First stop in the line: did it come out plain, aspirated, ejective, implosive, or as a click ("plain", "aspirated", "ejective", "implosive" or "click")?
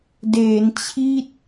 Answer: plain